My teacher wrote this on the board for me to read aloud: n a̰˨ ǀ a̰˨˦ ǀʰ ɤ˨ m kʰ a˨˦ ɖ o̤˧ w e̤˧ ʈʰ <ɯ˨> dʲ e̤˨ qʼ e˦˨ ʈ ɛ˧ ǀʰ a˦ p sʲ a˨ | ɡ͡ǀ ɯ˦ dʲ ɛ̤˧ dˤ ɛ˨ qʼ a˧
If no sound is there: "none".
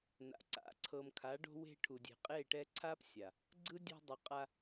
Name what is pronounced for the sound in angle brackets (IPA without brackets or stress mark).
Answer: u˨